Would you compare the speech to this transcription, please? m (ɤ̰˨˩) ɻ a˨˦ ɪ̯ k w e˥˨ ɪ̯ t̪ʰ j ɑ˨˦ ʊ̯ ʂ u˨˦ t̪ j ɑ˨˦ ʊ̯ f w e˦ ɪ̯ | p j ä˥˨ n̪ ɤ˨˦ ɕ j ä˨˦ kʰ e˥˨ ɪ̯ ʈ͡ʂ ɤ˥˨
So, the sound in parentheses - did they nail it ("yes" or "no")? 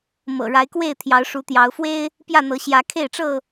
yes